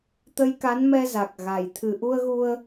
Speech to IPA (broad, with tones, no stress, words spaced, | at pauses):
t̪ə˧jka˨˦nmɛ˧za˨˩k̚ ɣa˨˩j t̪ʰɨ˨˩ʔu˧ə̯ɣu˧ə̯